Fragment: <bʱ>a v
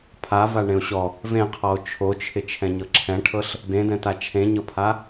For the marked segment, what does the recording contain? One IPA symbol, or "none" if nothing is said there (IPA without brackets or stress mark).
pʰ